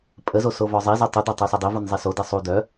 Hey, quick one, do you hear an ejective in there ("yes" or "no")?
yes